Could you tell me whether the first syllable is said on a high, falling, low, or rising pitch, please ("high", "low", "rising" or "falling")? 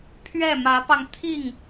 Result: falling